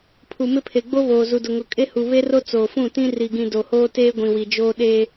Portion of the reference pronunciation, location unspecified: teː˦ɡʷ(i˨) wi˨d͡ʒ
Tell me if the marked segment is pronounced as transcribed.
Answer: no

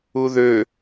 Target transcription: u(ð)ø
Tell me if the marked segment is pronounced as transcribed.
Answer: yes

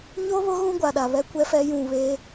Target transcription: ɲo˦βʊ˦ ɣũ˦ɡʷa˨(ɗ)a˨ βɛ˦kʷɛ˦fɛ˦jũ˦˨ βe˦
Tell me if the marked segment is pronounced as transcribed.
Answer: yes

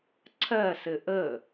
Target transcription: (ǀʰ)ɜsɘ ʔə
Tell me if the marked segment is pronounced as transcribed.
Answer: yes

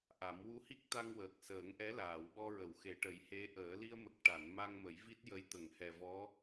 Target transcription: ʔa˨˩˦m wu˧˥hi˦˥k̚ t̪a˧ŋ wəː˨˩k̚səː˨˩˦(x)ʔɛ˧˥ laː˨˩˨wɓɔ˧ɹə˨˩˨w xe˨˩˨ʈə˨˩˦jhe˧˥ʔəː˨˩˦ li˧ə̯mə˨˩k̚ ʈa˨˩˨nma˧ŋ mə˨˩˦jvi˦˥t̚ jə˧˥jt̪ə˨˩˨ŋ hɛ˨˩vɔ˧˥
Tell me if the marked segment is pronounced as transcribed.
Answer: no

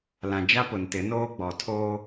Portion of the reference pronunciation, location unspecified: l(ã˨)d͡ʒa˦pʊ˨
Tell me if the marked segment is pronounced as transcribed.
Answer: yes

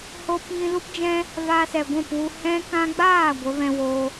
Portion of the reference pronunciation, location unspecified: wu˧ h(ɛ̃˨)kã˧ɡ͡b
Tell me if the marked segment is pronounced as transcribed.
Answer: no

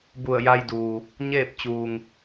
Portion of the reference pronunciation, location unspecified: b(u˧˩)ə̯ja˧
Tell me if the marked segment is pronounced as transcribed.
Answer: yes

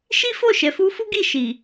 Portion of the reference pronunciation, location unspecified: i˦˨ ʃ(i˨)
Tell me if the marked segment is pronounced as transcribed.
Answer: yes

